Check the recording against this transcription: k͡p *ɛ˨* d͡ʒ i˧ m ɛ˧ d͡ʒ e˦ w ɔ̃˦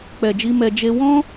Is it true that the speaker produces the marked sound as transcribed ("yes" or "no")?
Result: yes